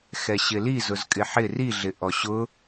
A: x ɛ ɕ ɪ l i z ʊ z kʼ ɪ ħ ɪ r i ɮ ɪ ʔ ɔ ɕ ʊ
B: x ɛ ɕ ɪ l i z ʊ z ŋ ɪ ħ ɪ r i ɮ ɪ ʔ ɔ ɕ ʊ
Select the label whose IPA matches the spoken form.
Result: A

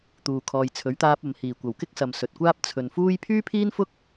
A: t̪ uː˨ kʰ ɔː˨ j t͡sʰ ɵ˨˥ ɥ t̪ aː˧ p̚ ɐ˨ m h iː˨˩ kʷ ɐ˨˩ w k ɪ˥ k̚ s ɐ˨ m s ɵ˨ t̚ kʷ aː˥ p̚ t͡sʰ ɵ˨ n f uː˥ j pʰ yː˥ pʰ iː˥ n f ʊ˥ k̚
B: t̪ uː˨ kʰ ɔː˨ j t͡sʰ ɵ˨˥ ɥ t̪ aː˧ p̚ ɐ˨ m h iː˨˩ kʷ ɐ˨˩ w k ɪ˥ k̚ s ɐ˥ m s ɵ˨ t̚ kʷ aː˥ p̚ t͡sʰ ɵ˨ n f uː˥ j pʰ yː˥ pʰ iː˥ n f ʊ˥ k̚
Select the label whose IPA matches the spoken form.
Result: A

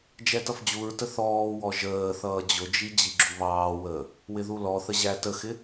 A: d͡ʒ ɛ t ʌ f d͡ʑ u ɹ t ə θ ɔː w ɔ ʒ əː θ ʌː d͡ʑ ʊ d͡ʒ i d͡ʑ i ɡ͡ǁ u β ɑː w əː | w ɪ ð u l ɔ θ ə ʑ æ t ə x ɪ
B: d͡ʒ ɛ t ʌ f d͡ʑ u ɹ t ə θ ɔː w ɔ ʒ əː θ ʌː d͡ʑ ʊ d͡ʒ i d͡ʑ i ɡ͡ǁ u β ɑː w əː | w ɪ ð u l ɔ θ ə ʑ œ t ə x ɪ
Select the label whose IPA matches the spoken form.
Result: A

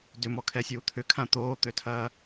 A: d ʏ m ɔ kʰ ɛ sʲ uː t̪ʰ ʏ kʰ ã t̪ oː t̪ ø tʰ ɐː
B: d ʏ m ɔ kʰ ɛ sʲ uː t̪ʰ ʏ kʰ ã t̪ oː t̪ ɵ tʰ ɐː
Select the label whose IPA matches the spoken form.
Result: A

